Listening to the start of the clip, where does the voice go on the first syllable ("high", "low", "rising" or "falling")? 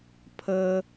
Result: high